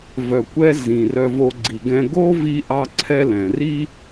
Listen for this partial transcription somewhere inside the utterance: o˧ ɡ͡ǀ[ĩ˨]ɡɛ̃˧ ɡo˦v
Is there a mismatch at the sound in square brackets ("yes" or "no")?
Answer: yes